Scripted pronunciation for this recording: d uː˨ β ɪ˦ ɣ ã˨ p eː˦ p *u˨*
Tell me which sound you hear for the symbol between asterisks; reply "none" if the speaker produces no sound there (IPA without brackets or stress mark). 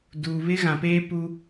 u˦